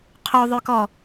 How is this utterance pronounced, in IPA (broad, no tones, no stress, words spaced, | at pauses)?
qʰoðˤøkɔ